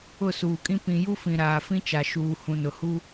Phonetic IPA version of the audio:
ʊ˦˨ s uː˨ kʼ ĩ˦ p ĩ˨ j u˦ f ĩ˨ ɾ aː˨ f ĩ˦ t͡ʃ a˨ ʃ uː˨ h ũ˨ n ʊ˨ h u˦

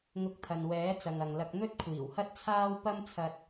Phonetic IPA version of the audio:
ŋ ʊ˧ k̚ t̪ʰ ɐ˨ n w ɛː˨˥ t͡s ɐ˨ ŋ ɐ˨ ŋ l ɐ˧ k̚ n̪ ɵ˥ t̚ kʷʰ iː˨˩ w h ɐ˥ t̚ t͡sʰ aː˥ w p ɐ˥ m t͡sʰ ɐ˧ t̚

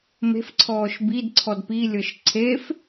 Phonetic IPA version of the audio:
m e̤ f ǀʰ ɔː ʃ b i d ǀʰ ɔ d p i lʲ ɤ ʃ ǀʰ e f

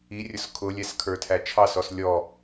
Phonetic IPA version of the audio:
i rʲ ʊ s kʰ ʊ lʲ ɛ s kʰ ə˞ tʰ æ t͡ʃʰ ɑ s ɔ s lʲ ɔ

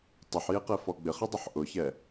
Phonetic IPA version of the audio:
tˤ ɪ ħ j e q ɛ f ɔ ɡ͡b ɪ χ i dˤ ʊ ħ ʔ ʊ ç ɛ

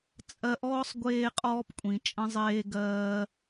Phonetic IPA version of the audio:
t͡sʼ ɜ˧ ʔ ɔː˥ sˤ ɡʷ eː˧ qʼ ɔː˧ p kʷʼ ĩ˩ t͡ʃʼ ə̃˧ zˤ eː˧ ɡ ɜː˧

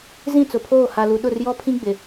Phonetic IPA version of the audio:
z ĩ˦˨ t͡s ʊ˨ pʰ oː˦˨ h a˨ l u˨ ɗ ʊ˦˨ r j ɔ˦ pʰ ĩ˦ ɡ͡b ɪ˨

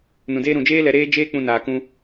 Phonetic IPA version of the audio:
n ũ˨ d eː˦ ɾ ũ˨ d͡ʒ eː˦ l ɛ˧ ɾ eː˦ d͡ʒ eː˦ k͡p ũ˧ n aː˧ k ũ˦

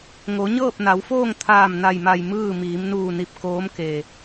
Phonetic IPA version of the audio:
ŋ o˩˧ ɲ ɤː˥˨ p̚ n a˩˧ w f oː˥˨ ŋ t̪ʰ aː˧˩ m n a˧˩ j m a˧˩ j m ɯː˥˨ m iː˩˧ m n uː˧˩ n i˧˩ p̚ k oː˧˥ m k e˩

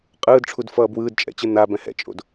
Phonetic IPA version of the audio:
qʼ ɯː d ʈ͡ʂʰ u d f ʌː b w ɯː d t͡ʃʼ ɛ̰ t͡ɕ ɯ n̪ a b ɛ̃ h ɛ̰ t͡ʃʼ o̰ d

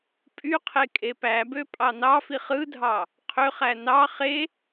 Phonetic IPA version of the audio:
pʼ y qʰ e kʼ e p æ b ø pʼ ɑ n ɑ f i χ ɯ dʱ ɑ | qʰ ø χ æ n ɑ χ e

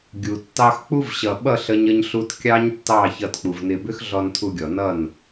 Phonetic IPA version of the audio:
ɡʲ u˨ tː ɑ˧ x k͡p u˦ v ɕ ʌ˨ ɓ ʌ˦˨ ɬ ə˦ ɲ ə˦ ɲ ɬ u˦ t kʲ ɑ˦ ɲ tː ɑ˦˨ ç ʌ˧ t k͡p u˨ v n ɪ˧ b ʏ˦ x ɮ ɔ˧ n tʰ u˧ ɡʲ ɔ˨ n ʌ˦˨ n

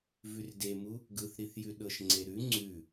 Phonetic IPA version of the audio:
v ʉ r d e m u | ɡ ɯ θ ɾ i θ j ʉ ɗ ɤ ʃ ŋ͡ǀ e ɾ ʉ ŋ͡ǀ ʉ

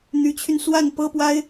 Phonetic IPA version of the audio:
n̪ y˧˥ t͡ɕʰ y˧ n s w a˥˩ n p ɤ˥ p w a˥ ɪ̯

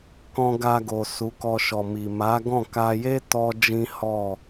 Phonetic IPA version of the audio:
k ɔ̃˧ ɡ a˧ ɡ o˨ s u˨˦ k ɔ˧ ʃ ɔ˨ m i˨ m a˨˦ ɡ ɔ̃˦˨ k a˧ j e˦ t ɔ˦ d͡ʒ ĩ˦ h ɔ˦˨

